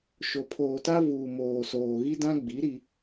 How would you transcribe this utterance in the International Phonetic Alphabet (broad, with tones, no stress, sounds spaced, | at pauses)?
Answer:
ʃ o˨ pʰ oː˨ t a˦ v uː˨ m oː˨ s oː˨ ɣ i˦ d ã˦ ɡ͡b i˨˦ ɾ i˦